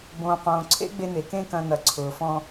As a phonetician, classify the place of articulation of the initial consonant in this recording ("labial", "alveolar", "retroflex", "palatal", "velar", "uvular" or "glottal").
labial